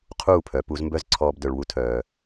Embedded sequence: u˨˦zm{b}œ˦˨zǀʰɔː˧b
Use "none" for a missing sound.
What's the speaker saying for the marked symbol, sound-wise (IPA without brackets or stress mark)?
b